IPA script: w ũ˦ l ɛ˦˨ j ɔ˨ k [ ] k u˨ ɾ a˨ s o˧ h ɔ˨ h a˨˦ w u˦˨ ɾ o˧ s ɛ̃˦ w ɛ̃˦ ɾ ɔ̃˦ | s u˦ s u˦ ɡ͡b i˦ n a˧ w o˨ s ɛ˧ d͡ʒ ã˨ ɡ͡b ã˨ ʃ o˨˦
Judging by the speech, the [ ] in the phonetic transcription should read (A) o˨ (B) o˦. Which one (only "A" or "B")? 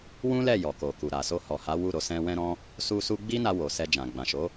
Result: A